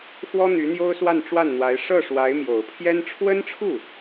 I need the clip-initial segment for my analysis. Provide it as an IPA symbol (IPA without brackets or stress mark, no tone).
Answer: x